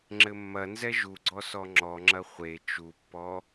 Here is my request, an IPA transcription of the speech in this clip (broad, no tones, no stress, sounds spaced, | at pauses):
ŋ͡ǁ ɘ mː ɐ n z ɛ ʒ u ɡ͡ǀ ɔ s ɔ ŋ͡ǁ ɔ ŋ͡ǁ ɐ χʷ e t͡ʃ u pː ɔ